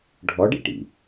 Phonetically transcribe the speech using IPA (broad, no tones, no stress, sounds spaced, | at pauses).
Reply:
ɖʱ ɔ ɖ ḭ ʈ ḭ